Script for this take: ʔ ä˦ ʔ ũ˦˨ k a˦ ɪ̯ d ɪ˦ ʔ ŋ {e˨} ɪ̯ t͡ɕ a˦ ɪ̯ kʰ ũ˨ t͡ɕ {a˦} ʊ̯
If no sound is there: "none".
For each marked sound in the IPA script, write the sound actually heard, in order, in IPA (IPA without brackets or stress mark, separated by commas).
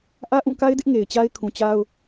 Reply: e˨, a˦